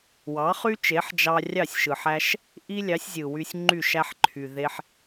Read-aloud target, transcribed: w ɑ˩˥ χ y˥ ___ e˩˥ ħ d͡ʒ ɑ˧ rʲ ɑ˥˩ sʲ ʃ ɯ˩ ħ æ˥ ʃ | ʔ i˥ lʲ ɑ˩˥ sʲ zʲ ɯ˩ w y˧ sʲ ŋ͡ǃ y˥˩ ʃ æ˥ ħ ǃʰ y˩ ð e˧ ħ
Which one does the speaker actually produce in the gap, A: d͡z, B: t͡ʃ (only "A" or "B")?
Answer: B